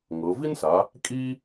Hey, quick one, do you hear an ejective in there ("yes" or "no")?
yes